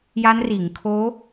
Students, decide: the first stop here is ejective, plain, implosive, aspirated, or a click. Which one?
aspirated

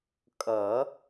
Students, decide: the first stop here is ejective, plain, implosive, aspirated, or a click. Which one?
ejective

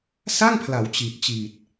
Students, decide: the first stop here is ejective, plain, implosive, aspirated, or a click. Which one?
aspirated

